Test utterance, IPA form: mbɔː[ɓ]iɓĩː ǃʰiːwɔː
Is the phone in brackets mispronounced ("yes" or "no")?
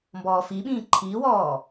yes